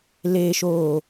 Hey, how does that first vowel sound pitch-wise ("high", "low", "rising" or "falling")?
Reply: low